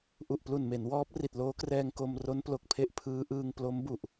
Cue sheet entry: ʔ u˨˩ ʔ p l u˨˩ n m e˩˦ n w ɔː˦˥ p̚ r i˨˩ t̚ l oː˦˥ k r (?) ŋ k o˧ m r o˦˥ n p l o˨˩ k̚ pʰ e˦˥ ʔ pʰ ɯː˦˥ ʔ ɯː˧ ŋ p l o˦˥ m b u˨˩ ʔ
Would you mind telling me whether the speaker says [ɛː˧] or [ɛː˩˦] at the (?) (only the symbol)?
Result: ɛː˧